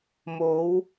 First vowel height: mid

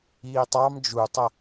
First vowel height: high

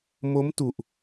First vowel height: mid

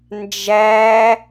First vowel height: low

